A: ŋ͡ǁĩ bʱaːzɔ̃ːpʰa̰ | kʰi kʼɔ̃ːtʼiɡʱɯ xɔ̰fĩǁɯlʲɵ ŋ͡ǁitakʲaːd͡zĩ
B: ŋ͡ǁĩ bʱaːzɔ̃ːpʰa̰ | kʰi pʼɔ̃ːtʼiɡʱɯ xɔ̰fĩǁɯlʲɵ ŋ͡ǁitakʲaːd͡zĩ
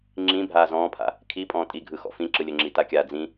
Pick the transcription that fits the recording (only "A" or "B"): B